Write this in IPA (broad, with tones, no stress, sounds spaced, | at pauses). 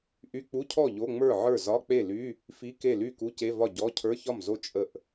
ʔ y˧˥˧ k͡p u˧˥˧ cʰ ɔ˥˩ ʎ o˧˥˧ ŋ͡m ə˞˥˩ ʕ ə˞˥˩ z ɒ˧˥˧ k͡p e˥˩ l y˧˥˧ | f i˧˥˧ k e˥˩ l y˥˩ k u˧˥˧ c e˧˥˧ v ɒ˥˩ ɟ ɔ˧˥˧ cʰ ə˞˧˥˧ ç ɒ˥˩ m z o˥˩ t͡ʃʼ ə˥˩ ʔ